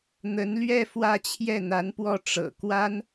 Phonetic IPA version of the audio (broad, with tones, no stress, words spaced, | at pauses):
n̪ə˧˥nlɥɛ˥˧ fwä˥˧t͡ɕʰjɛ˥˩n̪a˧˥npwɔ˥˩ ʈ͡ʂɤ̰˨˩kwa˥n